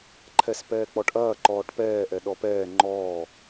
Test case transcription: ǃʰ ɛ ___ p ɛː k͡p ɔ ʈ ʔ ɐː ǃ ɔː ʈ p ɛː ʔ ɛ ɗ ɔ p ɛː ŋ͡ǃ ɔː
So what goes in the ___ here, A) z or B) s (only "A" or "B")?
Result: B